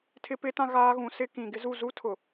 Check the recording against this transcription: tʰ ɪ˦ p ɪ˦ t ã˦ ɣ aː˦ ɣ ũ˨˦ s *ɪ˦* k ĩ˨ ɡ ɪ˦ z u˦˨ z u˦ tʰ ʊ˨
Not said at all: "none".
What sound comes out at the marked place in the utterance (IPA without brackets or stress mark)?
ɪ˦